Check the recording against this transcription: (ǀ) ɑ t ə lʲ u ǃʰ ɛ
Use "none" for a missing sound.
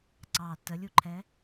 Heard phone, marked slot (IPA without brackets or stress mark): ǀ